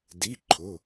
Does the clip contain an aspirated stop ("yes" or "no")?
yes